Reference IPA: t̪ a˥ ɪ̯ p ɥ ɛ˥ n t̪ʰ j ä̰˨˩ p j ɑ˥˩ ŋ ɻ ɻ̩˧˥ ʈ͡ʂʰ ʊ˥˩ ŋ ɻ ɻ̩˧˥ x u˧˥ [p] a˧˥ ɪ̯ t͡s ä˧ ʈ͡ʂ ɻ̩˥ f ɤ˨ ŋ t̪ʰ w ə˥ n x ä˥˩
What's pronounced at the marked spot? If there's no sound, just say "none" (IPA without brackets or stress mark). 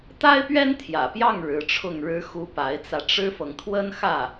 p